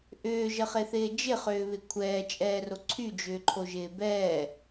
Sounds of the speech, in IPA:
ʔ ʏː ʒ ə χ e θ ɪː d͡ʒ ɪ χ ʏː β ɪ kʷʰ ɛː t͡ʃʼ ɛː r o ǀʰ y d͡ʒ ʏː ǃʰ o ʒ ɪː b ɛː

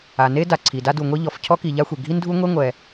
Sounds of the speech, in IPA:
a˩ n e˥ d a˩ ǀʰ i˩ d a˥ d u˩ ŋʷ e˥ ʎ ɔ˩ f cʰ ɔ˥ k i˩ ʎ a˥ xʷ e˩ ɡʱ i˥ n dʱ u˥ ŋʷ e˥ ŋʷ ɛ˩

